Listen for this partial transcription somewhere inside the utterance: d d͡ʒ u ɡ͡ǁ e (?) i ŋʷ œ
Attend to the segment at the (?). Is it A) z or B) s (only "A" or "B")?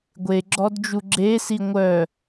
B